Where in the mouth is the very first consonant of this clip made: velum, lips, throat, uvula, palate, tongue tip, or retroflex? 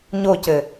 palate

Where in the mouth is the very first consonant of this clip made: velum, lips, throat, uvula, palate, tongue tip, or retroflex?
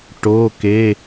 retroflex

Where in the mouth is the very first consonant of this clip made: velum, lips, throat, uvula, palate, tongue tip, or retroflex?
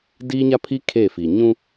tongue tip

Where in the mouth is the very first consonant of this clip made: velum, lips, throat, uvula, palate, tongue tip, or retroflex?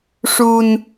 retroflex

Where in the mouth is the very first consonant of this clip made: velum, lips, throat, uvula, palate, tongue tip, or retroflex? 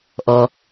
throat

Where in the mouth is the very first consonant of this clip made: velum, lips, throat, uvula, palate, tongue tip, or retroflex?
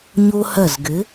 palate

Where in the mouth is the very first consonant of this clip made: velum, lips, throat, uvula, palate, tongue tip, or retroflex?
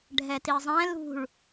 retroflex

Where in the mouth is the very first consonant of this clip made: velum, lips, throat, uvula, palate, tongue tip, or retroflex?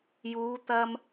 palate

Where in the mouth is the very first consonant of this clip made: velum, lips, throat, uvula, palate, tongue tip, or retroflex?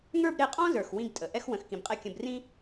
velum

